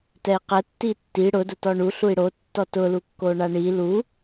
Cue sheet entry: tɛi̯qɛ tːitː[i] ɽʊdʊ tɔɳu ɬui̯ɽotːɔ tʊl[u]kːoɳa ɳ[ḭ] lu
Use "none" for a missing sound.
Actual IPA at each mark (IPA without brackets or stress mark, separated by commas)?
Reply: i, u, i